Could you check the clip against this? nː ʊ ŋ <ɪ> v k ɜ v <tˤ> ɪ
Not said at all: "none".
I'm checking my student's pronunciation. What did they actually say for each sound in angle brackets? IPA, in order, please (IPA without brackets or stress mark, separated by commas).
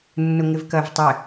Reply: ɪ, tˤ